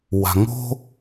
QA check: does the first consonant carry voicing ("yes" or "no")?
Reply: yes